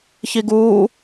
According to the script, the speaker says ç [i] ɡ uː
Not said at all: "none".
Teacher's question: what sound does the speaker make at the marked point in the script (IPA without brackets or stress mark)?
i